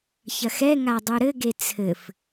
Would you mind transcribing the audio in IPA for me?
ç ɐ x ɛ ŋ a dˤ u ɾ ɘ ɡ e t͡sʰ ɘ f

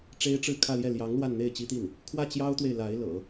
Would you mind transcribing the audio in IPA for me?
ʈ͡ʂ e˥ ɪ̯ ʈ͡ʂ ɻ̩˥˧ kʰ ä˥˧ l j ɛ˥˩ l j ɑ˧˥ ŋ l w a˥˧ n n̪ e˥˩ ɪ̯ t͡ɕ i˥ t̪ i˥˩ n | kʰ w ä˥˩ t͡ɕ j ɑ˥ ʊ̯ t̪ w e˨ ɪ̯ l a˧˥ ɪ̯ l ɤ̰˨˩˦

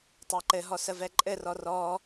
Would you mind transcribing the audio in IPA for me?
tˤ a ǃ ɘ ɦ ɔ s ə v ɛ ǃʼ ɘ r ɔ r ɔ

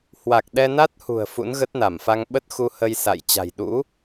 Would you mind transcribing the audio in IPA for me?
h w a˨˩ k̚ ɗ ɛ˧ n a˦˥ t̚ h ṳ˨˩ ə̯ f ṵ˧˥ n ɣ ə˦˥ t̚ n a˧˩ m f a˧ ŋ ɓ ə˦˥ t̚ x u˧ h ə˧ j s a̰˧˨ j t͡ɕ a̤˨˩ j ɗ ṵ˧˥

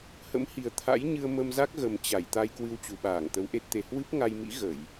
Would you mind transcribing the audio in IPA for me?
h ə̰˧˥ m h i˨˩ ə̯ t̪ʰ a̰˧˥ j ɲ ɨ˧ ə̯ m ə˧ m z a˦˥ k̚ ɣ ə˨˩ m t͡ɕ a˧˩ j t̪ a˧ j k w ɨ˧ w t͡ɕ u˨˩ ɓ aː˧˩ ŋ t̪ ə˨˦ w ʔ e˦˥ t̚ t̪ e˧ h w ɨ˦˥ p̚ ŋ a˧ j m ḭ˧˥ ɣ ə˧˩˨ j

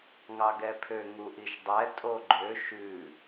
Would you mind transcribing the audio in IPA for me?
ŋ ɑ ɡ ɛ pʰ ø ŋ u ʔ i ʃ dˤ ɛ tʼ o ɡ͡ǃ ø ʃ ʉ

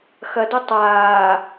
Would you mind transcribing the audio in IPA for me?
x ɐ d o tˤ aː

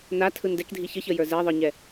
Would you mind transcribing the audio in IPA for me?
n a tʰ ɯ n d ɛ k dʱ i ç ə ç ə j ə˞ z ɛ ðˤ ə˞ ɲ ɛ

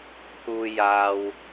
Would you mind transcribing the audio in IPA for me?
pʰ uː˨ j aː˨ w

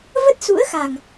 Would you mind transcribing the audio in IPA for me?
v ə˦˥ t̚ s ṵ˧˥ ə̯ x a˨˩ ŋ

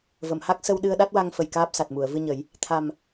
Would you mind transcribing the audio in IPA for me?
v ə˨˩˨ m h a˦˥ k̚ s ə˧ w ɗ ɨ˧ ə̯ ɗ a˦˥ t̚ w a˧ ŋ f ə˨˩ j k aː˦˥ p̚ s a˨˩ t̚ m u˨˩˨ ə̯ v ɨ˧ ɲ ə˨˩˦ j | t̪ʰ a˨˩ m

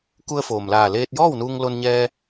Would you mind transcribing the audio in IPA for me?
k u˧ ə̯ f oː˩ m l aː˧˩ l eː˧ t̚ j ɔː˥˨ w n uː˧ ŋ l o˧ n ɲ ɛː˧

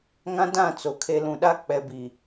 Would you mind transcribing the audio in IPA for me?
ŋ ã˦ d ã˦˨ t͡s o˨ kʰ e˨ l ũ˨ ɗ a˦ k͡p ɛ˨ b i˨

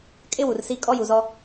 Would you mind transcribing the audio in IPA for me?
kʼ ɪ˦ w u˨ r s i˦ kʼ ɔ˦ j u˨ z ɔ˦

